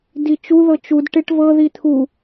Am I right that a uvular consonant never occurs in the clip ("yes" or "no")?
yes